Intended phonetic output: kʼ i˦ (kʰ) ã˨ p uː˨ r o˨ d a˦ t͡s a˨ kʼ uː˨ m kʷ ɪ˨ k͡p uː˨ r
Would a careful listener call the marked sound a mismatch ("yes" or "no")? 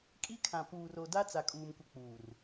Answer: no